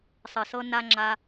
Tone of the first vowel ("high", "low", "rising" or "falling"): low